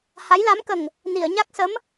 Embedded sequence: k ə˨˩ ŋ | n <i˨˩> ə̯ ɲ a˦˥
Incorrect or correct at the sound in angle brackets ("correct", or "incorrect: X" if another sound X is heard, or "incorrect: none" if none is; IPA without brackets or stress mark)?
incorrect: i˨˩˨